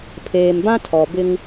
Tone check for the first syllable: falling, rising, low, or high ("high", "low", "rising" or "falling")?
low